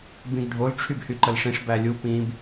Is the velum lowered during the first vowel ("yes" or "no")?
yes